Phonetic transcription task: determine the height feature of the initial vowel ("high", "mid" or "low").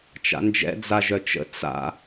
low